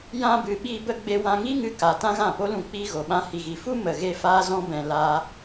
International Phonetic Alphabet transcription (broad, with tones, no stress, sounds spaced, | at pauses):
j ã˧ b ɨ˨ ɓ iː˧ b ə˧ ɡ͡b e˧ w ã˧ ŋ i˦ ŋ ɨ˧ k a˨ t ã˦ ɣ ã˦˨ p o˦ l ũ˧ k͡p iː˧ ɣ o˨ ɓ ã˧ h i˨ ɣ i˨ f u˦ m ə˨ ɣ e˧ f aː˦ z ɔ̃˦ b ɛ̃˧ l aː˦